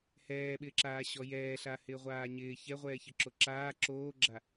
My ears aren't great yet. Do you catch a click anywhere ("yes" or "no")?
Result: yes